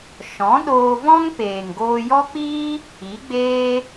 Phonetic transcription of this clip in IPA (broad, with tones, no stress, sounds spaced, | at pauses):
ʃ ɔ̃˨˦ ɗ oː˧ v ɔ̃˦ ŋ p eː˨ ŋ ɡ oː˧ j ɔ˦ k͡p iː˦ | i˨˦ ɡ͡b eː˦